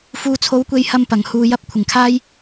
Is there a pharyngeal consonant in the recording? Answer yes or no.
no